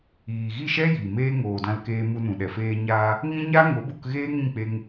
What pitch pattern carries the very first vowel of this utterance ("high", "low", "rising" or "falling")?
low